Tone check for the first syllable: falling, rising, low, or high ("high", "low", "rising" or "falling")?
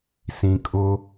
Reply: low